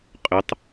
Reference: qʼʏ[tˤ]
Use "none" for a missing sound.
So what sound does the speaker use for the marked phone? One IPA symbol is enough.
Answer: tˤ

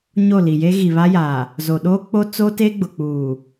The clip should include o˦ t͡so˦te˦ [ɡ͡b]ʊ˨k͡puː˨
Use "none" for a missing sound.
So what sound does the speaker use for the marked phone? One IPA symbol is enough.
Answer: ɡ͡b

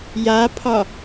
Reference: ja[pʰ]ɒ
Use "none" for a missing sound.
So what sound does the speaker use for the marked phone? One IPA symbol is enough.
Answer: pʰ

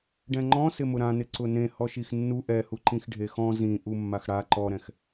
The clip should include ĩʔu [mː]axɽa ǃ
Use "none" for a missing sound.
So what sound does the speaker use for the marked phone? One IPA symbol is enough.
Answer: mː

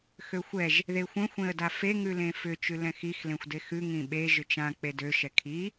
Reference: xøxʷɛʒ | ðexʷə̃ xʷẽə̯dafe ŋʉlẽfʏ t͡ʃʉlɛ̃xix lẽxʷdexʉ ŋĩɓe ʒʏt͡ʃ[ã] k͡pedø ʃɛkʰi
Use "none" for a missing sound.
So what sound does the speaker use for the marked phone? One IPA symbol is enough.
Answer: ã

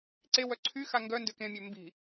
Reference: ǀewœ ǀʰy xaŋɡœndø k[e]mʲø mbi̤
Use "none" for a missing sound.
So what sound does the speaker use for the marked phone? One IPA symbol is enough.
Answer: ẽ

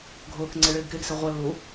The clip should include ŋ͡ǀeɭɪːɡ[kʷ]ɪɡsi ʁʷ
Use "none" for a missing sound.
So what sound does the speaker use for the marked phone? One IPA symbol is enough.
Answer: k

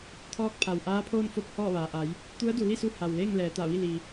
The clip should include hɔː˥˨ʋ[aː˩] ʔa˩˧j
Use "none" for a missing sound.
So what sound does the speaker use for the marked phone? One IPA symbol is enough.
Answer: aː˩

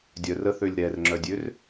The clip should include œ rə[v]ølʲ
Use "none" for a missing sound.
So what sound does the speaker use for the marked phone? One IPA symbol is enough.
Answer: θ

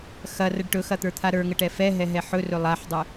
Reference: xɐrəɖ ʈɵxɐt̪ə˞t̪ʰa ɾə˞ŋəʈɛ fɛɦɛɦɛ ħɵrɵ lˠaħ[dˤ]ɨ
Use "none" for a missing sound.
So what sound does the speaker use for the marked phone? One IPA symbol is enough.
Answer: dˤ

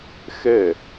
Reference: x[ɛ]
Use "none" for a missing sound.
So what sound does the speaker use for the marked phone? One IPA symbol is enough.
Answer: ɛ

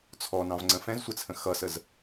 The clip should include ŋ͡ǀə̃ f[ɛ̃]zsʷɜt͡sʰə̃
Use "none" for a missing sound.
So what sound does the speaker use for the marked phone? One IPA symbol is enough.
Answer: ɛ̃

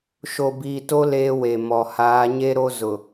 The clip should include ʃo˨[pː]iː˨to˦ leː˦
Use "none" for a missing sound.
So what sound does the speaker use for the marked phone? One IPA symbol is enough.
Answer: b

